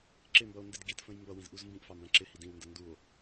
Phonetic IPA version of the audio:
ǁ ɪ m b ʌ o̯ n d ɪ d ɡ i t f ə̃ j m b ʌ w ĩ z ʔ u z m b ĩ ʔ f ɑ m b æ̃ ǁ ɪ h i d ĩ w n d ə n d u o̯

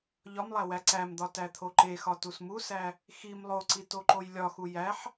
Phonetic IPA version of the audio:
ʎ ɒ m lˠ æ w æ ǀ æ m d̪ ɒ t æ t̪ʰ o ǃ e x ɒ t u s m u s æ | x i m lˠ o ǀ i t o ǃ o j lʲ ɒ x u j æ ħ

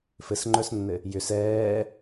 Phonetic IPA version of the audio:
f ɘ s ŋ͡ǃ œ s nː ɘ | j ʏ s ɛː

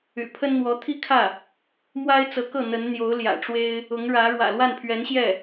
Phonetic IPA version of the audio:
y̰˨˩ pʰ ə˥ n n̪ w ɔ˧˥ t̪ʰ i˥ kʰ ä˥˩ | m w a˥ ɪ̯ t͡s ɤ˧˥ k ɤ˥˩ n̪ ə˧˥ n n̪ j o˧˥ ʊ̯ l j ä̰˨˩ ʈ͡ʂ w e˥ ɪ̯ | ʊ˧˥ ŋ ɻ ä˧˥ ɻ w ä̰˨˩ l w a˥˩ n pʰ ɥ ɛ˧˥ n ɕ j ɛ˥˩

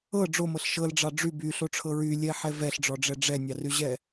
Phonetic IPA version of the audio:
ɤ ɖ͡ʐ o m ɤ ɬ ʃ ɤ l ɖ͡ʐ ɑ ɖ͡ʐ y b y ɬ o ʈ͡ʂʰ ɤ ɹ y lʲ ɛ ħ ɛ v ɛ ɬ ɖ͡ʐ ɔ ɖ͡ʐ ɛ ɖ͡ʐ ɛ nʲ ɑ r y ʑ ɛ

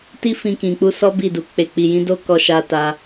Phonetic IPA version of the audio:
t i˦ f ĩ˧ k ĩ˨ k͡p u˧ s ɔ˦ b i˦˨ d u˨ k͡p e˨ k͡p i˨ j ĩ˨˦ d o˦ k ɔ˧ ʃ a˧ t a˧

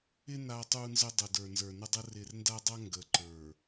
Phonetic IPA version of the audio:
ɪ˦ n a˦ tˤ u˦ n z ə˦ dˤ ə˨ d ə˞˨ n z ə˞˨ n ə˦ dˤ ə˦ r ɪ˨ r n d a˦ dˤ a˦ ŋ ɡ ə˨ ǃ ə˞˨

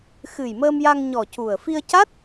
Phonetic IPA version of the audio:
x ɨ˨˩ j m əː˧ m j a˧ ŋ ɲ ɔ˨˩ c u˨˩ ə̯ f i˧ ə̯ c a˦˥ t̚

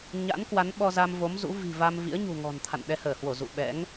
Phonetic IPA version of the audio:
ɲ a̰˧˥ n k w a˨˦ n ɓ ɔ˧ z a˧ m v o˨˦ m z ṵ˧˥ v i̤˨˩ v a˧ m v ḭ˧˥ ə̯ ɲ ṳ˨˩ ŋ ɔ̤˨˩ n t̪ʰ a̰˧˨ n ɗ ɛ˧ h əː˧˩ h w o˧˩ z ṵ˧˨ ɓ ɛ̰˧˥ ŋ

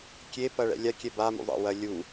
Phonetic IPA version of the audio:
kʲ e p ɐ ɭ ɛ̰ lʲ a kʲ ɛ b a m ṵ ðˤ ɛ̰ w ɐ lʲ u

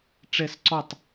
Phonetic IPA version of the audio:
ʈ͡ʂ ɛ s ǀ ɔ tˤ

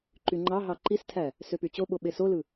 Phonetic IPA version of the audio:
ǃ y ŋ͡ǃ ɑ ɦ ɑ ǃ i s tʰ æ | s ø p y t͡ɕ o ɓ o ɓ e s o l ɯ

